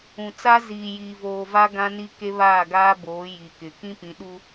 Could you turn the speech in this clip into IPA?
ũ˨ t͡s a˦ z iː˨ j iː˨ v oː˨ v a˦ ɡ ã˦ n i˦ k e˦ β aː˦˨ ɡ aː˦ b oː˨˦ j i˨ k ɪ˨ k ĩ˦ p ĩ˨˦ ɗ u˦

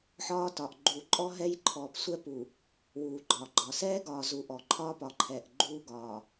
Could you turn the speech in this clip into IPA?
ħ ɒː˦ t ɒ˨ ʔ ɡ͡ǃ uː˨ ǃʼ ɔ˦ ɦ ɛ˦ j ǃʰ ɔː˨ p sʷ ɛ˦ p u˨ | w uː˨ ɡ͡ǃ ɒː˨ ɡ͡ǃ ɒ˨ s ɛː˦ ɡ ɒː˨ z u˨ ʔ ɔ˨ ǃʰ ɒː˦ p ɒ˨ ǃʰ ɛː˨ ʔ ɡ͡ǃ uː˦ ɡ ɒː˨

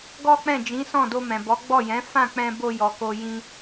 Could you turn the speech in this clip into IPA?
ɡ ɔ˦ k͡p ɛ̃˦˨ d͡ʒ ĩ˨˦ s ɔ̃˦˨ d o˧ m ɛ̃˨ b ɔ˨˦ ɡ͡b ɔ˦˨ j ɛ̃˨˦ f ã˦˨ k͡p ɛ̃˧ b o˧ j ɔ˨ k o˧ j ĩ˧

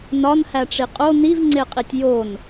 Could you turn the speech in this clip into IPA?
n ɒ n h æ ʈ͡ʂ i qʼ o n i v ŋ͡ǀ e qʼ i tʲ j o n

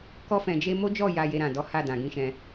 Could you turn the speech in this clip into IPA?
k ɔ˧ f ɛ̃˨ d͡ʒ e˧ m o˦ d͡ʒ ɔ˦˨ j a˧ j e˧ ɾ ã˨ d ɔ˨˦ h a˦˨ d ã˨ ɡ ĩ˧ ʃ ɛ̃˧

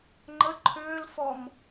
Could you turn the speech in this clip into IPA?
ŋ͡ǃ ə ǃʰ ʏː l f ɔ m

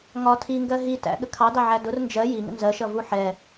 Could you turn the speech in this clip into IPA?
ŋ ɒ tʰ i ŋ ɡ ɜ ɦ i t æ̰ ɠ ə kʰ ɑ d ɑ ʕ æ d ʊ r n d͡ʒ ɜ j i ŋ ə̰ n z ɜ ʃ ʌ v u ħ ɛ

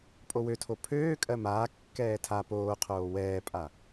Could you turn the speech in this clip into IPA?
pʼ o w ø tʰ o pʰ øː kʼ ɜ m aː kː ɛː tʰ a p oː qʰ oː w ɛː pʼ a

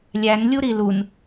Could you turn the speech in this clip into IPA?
lʲ æ n lʲ u ɾ i l u n

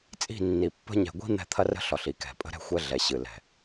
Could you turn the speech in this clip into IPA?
t͡sʼ i̤˦˨ nː i˨ pː ə̤˦ ɲ ɛ̤˨ ɡʷ i̤˦ n̪ ɛ̤˦ t̪ʰ ɐ˦ r ə̤˦ ɬ ɒ˨ ɬ i˨ k ɛ̤˨ pʼ ə̤˦ ɾ ɛ̤˦ xʷ ɛ˦ ɮ ɛ˨ ɕ ɨ˨ l ɛ̤˨

